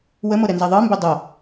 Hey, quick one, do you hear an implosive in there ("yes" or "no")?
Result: no